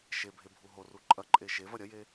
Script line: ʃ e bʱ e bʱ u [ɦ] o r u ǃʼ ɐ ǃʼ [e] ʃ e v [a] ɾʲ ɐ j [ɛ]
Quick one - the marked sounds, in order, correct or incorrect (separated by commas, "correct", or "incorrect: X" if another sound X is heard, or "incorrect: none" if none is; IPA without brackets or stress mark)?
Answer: correct, correct, incorrect: ɐ, incorrect: e